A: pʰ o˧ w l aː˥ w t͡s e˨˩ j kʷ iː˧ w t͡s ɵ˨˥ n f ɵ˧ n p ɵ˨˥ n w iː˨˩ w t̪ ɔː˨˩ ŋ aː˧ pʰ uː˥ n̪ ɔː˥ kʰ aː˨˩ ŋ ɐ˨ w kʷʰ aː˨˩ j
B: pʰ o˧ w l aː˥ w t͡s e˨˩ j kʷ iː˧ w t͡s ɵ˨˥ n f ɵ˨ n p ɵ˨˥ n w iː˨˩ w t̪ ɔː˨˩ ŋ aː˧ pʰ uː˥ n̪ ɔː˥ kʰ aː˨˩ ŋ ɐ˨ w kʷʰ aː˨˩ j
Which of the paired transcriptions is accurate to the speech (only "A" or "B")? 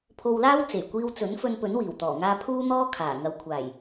A